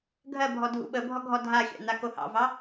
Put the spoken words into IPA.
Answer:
ɡʱɜbʱɔ dʱṵɓəbʱɔ ɡʱɔdʱaxʲɑ̰ n̪akohɑ̰vɑ

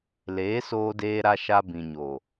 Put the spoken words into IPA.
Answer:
leː˨˦soː˧deː˧ɾa˧ ʃa˧bĩ˨ɲo˨

